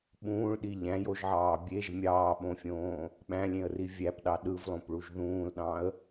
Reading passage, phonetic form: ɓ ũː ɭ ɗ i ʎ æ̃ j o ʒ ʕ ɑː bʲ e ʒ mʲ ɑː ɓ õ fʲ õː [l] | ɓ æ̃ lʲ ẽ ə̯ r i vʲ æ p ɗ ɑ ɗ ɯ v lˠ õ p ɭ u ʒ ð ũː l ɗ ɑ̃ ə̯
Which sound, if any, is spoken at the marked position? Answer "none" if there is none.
none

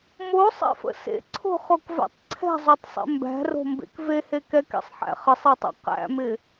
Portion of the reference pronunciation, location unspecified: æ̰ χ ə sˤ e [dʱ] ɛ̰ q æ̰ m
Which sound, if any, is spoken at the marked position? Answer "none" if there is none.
tˤ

